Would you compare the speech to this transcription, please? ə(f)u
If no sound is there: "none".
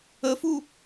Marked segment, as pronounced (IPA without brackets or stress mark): f